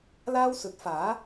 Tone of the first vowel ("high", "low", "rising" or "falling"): high